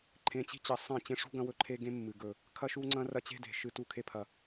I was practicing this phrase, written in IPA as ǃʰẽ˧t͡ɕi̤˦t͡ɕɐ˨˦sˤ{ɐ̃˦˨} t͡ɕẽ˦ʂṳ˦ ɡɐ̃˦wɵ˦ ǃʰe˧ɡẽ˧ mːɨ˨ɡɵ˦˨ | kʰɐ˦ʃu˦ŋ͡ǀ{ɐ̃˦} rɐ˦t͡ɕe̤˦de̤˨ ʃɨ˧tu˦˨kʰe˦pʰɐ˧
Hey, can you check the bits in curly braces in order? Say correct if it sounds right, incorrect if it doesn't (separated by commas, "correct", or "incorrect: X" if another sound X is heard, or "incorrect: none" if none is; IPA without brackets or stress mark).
correct, correct